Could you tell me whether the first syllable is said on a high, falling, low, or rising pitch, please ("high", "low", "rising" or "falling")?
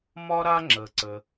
high